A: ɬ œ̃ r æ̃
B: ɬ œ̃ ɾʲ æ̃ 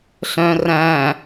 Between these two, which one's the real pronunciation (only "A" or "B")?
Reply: A